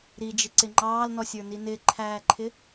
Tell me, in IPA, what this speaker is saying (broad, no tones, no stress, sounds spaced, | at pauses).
ɾ i d͡ʒ ɪ ǀ ɪ ŋ͡ǃ ɑː l n ɔ sʲ ə˞ n i n ɪ ǃʰ æː ǃʰ ɪ